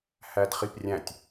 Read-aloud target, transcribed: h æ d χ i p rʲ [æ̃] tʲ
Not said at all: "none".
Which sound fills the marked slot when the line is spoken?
æ̃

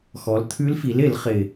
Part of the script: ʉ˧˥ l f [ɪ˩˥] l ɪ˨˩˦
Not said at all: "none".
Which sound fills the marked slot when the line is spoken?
i˩˥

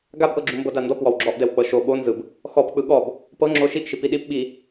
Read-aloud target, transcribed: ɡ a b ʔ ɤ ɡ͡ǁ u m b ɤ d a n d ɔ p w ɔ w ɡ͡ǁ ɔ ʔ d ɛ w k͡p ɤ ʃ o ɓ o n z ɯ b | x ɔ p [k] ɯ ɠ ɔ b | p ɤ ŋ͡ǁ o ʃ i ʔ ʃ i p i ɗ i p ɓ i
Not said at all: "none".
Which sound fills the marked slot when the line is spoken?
k͡p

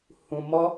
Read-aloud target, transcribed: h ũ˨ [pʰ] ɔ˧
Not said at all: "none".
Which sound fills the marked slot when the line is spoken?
m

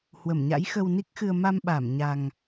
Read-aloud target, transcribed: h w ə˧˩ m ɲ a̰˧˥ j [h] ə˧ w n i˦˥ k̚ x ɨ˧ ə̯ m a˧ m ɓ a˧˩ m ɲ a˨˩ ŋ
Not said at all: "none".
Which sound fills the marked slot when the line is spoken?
x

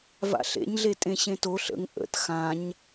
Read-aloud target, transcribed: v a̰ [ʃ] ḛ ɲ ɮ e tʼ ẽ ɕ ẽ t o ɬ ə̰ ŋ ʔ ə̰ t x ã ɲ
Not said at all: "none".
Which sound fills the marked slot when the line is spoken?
ɬ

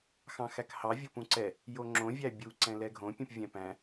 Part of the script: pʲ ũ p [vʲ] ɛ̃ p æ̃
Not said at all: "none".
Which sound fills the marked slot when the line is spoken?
vʲ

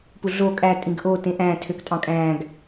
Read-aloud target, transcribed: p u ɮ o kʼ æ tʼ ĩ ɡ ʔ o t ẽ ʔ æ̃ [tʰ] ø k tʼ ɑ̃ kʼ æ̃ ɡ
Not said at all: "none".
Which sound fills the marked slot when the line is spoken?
tʰ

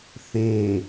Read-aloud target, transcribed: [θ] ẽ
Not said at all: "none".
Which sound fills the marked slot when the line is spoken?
θ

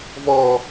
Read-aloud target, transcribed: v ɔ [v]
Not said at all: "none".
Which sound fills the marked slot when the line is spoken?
none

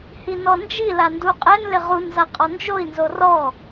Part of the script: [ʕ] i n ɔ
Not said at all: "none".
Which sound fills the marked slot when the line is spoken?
h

